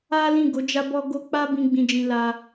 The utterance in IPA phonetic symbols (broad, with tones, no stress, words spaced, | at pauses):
a˦lĩ˦˨ɡo˨˦ d͡ʒa˧bɔ˧ɡo˧ k͡pa˦bĩ˧ ɡ͡bĩ˧d͡ʒĩ˧la˧